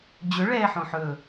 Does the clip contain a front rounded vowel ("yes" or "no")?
no